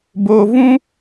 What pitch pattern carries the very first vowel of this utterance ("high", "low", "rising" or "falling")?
low